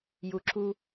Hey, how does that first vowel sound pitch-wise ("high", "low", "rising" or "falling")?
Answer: low